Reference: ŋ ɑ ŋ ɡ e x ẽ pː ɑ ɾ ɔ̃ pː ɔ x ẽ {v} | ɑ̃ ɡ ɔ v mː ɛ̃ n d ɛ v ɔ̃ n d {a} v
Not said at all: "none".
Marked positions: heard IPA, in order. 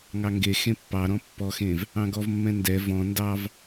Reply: v, ɑ

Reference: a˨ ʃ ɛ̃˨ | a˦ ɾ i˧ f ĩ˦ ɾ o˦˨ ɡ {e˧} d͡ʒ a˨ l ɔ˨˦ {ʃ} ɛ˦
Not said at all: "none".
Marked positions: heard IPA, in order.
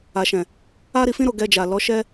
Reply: ɛ˧, ʃ

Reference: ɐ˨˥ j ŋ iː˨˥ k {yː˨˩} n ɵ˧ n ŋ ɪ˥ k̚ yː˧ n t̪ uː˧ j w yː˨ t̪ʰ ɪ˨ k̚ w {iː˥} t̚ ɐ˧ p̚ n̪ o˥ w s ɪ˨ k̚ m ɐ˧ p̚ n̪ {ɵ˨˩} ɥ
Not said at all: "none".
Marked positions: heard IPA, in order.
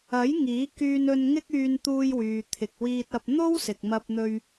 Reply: yː˧, iː˧, ɵ˧

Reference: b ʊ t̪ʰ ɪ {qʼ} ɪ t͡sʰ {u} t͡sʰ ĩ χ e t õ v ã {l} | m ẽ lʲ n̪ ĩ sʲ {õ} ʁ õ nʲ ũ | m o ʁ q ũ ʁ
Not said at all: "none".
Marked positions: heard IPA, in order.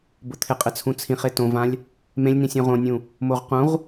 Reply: qʼ, ũ, lʲ, ũ

